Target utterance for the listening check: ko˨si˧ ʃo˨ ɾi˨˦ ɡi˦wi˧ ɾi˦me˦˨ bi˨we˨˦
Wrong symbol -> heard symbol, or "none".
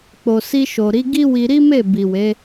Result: k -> k͡p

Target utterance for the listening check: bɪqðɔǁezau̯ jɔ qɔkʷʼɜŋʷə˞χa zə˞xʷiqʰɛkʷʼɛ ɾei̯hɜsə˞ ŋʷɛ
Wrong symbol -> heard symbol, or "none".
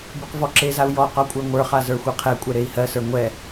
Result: ð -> v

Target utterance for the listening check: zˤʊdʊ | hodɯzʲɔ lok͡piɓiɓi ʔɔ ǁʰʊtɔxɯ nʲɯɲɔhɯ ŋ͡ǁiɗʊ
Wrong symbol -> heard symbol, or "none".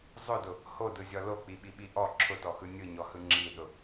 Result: none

